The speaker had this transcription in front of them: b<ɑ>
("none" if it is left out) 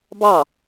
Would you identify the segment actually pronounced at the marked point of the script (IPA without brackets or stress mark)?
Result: ɑ